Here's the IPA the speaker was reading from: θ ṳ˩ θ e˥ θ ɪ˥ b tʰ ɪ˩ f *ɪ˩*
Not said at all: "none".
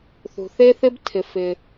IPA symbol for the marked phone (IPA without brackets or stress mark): ɪ˩